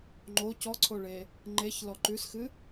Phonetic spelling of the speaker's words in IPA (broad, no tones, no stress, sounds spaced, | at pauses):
ŋ͡ǃ o c ɔ ǀʰ o ɭ e | ŋ͡ǃ e ç l ɔ ǃ ʉ s x ɨ